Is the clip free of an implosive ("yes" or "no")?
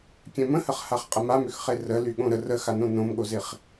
no